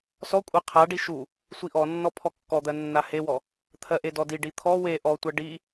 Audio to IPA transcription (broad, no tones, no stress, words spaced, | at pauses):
sɔkʷʼɜ qʰaɖi ʃu | sʷiʔɔnːɔ pʰɔkːɔd̪ɜ nːahewɔ | t̪ʰɜʔedɔdi ɖit̪ʰɔ we ʔɔtʷɜ ɖi